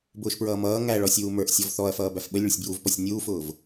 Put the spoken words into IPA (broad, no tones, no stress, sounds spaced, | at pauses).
b ʊː ʃ p ɹ ʌː m ʌː ŋ æ ɭ ɔ sʲ uː m ə˞ ʔ sʲ ɔ v θ ɔ ɐ̯ f ʌː b æ f ɓ ə lʲ ɭ ʊ sʲ b j u v p ɔ sʲ nʲ uː f ʊː v